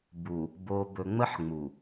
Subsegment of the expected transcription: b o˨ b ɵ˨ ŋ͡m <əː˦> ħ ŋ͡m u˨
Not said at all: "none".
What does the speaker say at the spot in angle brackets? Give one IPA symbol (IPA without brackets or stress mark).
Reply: ə˦